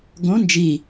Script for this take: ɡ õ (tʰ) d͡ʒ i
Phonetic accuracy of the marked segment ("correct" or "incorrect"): incorrect